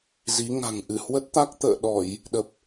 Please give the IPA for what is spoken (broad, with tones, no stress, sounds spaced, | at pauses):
z i˨˦ ŋ a̤˨˩ ŋ ʔ ɨ˧˩ h w ə˦˥ t̚ t̪ a˦˥ k̚ t̪ ə̰ː˧˨ ɗ ɔ˧˩˨ j | ɗ ə˨˩ p̚